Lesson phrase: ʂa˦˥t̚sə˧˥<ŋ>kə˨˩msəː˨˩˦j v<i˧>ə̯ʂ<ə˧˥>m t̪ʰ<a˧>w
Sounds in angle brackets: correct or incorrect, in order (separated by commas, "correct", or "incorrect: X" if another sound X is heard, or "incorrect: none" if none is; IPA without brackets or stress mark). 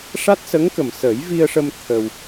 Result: correct, correct, incorrect: ə˧, incorrect: ə˧